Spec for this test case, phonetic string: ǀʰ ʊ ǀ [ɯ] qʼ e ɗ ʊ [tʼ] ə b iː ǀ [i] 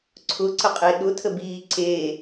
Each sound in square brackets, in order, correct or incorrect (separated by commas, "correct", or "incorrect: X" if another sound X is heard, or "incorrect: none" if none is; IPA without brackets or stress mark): incorrect: ə, incorrect: tʰ, incorrect: e